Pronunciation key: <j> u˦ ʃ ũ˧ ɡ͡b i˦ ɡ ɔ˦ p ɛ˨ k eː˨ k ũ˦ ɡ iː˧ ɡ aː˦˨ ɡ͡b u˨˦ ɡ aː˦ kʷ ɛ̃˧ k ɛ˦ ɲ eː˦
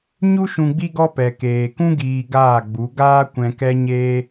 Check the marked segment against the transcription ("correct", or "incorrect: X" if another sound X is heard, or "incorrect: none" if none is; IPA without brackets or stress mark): incorrect: ɲ